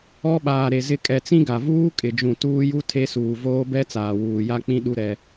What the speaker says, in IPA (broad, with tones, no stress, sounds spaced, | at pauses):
ɔ˦ ɓ aː˨ ɾ e˨ z ɪ˨ kʼ ɛ˨ t͡s ĩ˦ ɡ a˨ v uː˦ kʼ ɪ˨ d͡ʒ ũ˨ t uː˦ j u˦ tʰ e˦ s uː˨ v oː˦ b ɛ˦ t͡s aː˨ w uː˨ j a˦ k͡p ĩ˦ ɗ u˦ ɾ ɛ˦